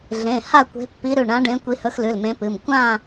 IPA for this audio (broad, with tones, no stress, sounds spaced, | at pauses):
ɮ ẽ˩˧˩ h a˦˨ kʷ e̤˨˦ pː i˨˦ ɾ ʉ˩˧˩ ɳ ã˨˦ ɖ ẽ˨˦ kʷ i˨˦ h ɵ˨˦ x l ʉ˩˧˩ l m ẽ˨˦ p ɨ˩˧˩ m kʷ ã˦˨